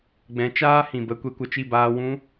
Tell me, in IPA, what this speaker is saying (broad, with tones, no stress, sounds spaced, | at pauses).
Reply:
ɡ͡b ɛ̃˨˦ t͡ʃ aː˦ h ĩ˨ b ə˧ kʷ e˧ kʷ ə˧ t͡ʃ i˦˨ b aː˧ w ũ˦